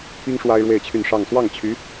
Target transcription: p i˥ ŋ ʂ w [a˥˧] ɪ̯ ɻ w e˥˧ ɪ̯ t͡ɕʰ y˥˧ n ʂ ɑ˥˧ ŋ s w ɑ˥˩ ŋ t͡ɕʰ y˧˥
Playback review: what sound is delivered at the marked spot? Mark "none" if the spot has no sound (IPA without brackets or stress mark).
a˥